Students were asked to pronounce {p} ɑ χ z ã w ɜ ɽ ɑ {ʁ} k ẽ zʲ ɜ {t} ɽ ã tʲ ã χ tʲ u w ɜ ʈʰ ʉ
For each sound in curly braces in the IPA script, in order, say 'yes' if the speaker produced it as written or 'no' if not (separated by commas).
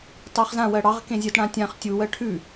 no, yes, yes